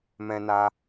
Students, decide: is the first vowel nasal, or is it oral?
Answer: nasal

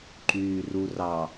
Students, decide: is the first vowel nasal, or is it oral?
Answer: oral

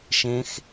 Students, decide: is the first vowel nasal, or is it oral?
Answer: nasal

